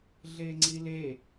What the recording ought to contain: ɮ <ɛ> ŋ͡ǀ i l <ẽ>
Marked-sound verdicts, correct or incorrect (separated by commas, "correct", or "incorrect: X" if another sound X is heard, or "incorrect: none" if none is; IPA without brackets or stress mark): incorrect: e, incorrect: e